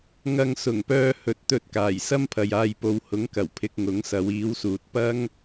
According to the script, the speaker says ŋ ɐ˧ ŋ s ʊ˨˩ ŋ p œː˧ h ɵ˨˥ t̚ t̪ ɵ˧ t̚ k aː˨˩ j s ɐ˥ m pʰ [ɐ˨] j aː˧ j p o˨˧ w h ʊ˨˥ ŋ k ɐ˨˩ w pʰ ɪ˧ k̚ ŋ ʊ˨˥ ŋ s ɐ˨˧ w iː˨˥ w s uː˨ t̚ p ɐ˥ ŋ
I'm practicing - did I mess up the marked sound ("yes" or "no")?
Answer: no